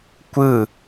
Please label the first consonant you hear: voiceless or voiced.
voiceless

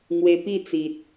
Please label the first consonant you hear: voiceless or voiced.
voiced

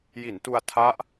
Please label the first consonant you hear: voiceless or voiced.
voiced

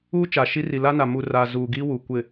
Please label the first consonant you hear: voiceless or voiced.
voiceless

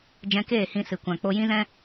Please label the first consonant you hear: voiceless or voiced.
voiced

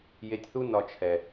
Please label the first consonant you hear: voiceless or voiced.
voiced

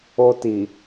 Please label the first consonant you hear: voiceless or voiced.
voiceless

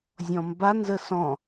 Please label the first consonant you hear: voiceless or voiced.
voiced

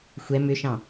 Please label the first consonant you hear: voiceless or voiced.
voiceless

